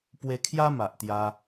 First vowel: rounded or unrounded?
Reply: unrounded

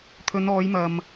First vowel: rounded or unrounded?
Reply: rounded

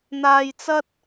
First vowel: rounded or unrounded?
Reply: unrounded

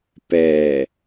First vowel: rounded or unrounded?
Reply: unrounded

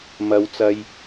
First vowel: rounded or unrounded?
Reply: unrounded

